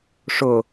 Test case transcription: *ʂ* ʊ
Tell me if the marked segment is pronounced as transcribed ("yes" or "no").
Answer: yes